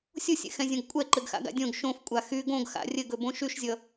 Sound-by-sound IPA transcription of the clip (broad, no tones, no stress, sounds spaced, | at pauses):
sʲ o sʲ ɛ̰ x ɛ̃ zʲ õ ɡ kʷʼ ɛ ǃ ɘ ɡ x a̰ ɡ a̰ dʲ õ ɡ ʃ õ f kʷʼ a x y ɡ õ ɡ x a̰ rʲ ɘ ɡ ɵ b õ ʃ y ʃ zʲ ʌ